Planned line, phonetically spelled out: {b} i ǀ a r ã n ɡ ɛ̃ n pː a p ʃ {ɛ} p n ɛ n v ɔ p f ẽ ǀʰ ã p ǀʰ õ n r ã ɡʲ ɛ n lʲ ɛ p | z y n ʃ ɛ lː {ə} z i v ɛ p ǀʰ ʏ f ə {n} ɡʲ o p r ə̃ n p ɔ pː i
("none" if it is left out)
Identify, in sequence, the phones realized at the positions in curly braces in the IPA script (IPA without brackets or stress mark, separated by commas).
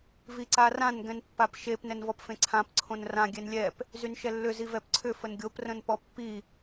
v, e, ʏ, n